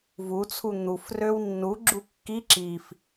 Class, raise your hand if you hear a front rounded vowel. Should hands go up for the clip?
yes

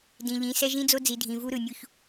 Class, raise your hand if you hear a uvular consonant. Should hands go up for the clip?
no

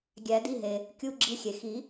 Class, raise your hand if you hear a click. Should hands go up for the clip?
yes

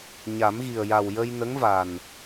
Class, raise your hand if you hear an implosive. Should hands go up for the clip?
no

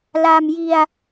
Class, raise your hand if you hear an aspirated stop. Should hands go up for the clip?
no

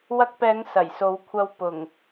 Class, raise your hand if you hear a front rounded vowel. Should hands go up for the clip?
no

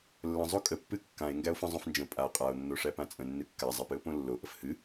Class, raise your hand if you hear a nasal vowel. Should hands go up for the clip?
yes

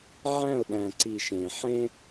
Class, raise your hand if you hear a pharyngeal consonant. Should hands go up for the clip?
yes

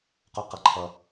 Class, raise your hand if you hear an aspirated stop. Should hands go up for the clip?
yes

